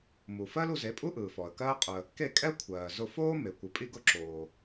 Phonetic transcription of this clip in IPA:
m u˩ f ɜ˥ l u˧ z e˩˥ pʼ u˥ ʔ ɯː˩ f ɔ˩ ə̯ k ɜː˥ qʼ ʊ˧ ə̯ | k e˥˩ kʼ ɛ˥ kʷʰ ɜː˩ z ʊ˧ f oː˥ m e˩ kʷ ɨ˩ pʼ i˧ ɡ ʊ˧ ǁ oː˩

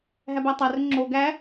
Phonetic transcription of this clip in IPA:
ɦ æ b æ tˤ æ r ɵ ŋ͡ǁ o ɡ æ

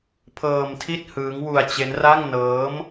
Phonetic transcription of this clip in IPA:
pʰ ɤː˧ m tʰ i˥˩ t̚ h ɯː˦˥ ŋ w u˧ a̯ t͡ɕ e˦˥ n r a˥˩ ŋ n ɤː˦˥ m

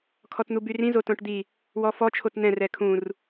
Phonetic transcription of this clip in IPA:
kʰ ɔ t n̪ u b y r ĩ z o t õ ʈ d̪ i | w ɔ f ɔ t͡ʃʰ o t n̪ ɛ̃ r ɛ kʰ ũ r

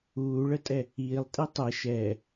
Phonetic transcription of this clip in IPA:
uː ɭ ə tʼ ɛ | iː lˠ tʼ i tˤ ɛ ʃ ɛ

